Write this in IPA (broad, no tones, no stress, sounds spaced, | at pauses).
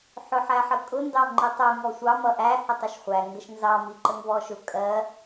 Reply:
ħ ʊ ħ æ ħ ə kʼ ʊ n d ɑ ŋ͡ǃ i tˤ u ŋ ɔ sʷ ɑ m ʌ ʔ æ h ə tˤ ʊ ʃ χʷ æ ŋ ɡ ə ʃ n z ɑ m i ǃ ə ŋ v ɔ ʃ ʊ kʼ ɜ